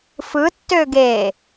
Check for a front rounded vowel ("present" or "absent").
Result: present